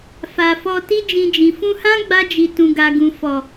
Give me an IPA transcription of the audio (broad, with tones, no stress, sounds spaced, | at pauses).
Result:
f a˨ f ɔ˧ t i˦ d͡ʒ ĩ˧ d͡ʒ ĩ˨ f ũ˧ h ã˦ ɡ͡b a˧ d͡ʒ i˨ t ũ˨ ɡ a˨ ɡ ũ˨ f ɔ˨